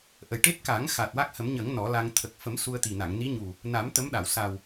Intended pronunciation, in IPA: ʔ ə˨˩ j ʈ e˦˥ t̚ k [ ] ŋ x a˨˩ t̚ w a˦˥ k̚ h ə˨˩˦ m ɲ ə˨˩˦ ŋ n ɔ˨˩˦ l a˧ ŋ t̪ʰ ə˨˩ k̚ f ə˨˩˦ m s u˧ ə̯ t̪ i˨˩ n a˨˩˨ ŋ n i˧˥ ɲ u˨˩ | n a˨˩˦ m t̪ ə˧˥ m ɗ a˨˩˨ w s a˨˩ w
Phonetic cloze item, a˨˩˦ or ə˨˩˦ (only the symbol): a˨˩˦